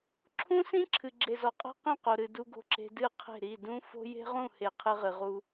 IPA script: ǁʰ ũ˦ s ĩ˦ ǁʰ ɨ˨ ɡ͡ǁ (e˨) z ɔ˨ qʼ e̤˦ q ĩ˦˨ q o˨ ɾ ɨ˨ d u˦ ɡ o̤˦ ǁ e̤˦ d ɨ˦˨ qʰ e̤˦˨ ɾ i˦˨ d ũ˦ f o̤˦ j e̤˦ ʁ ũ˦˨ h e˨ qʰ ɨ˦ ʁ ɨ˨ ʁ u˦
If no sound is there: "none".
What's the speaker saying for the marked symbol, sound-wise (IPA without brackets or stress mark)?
e˨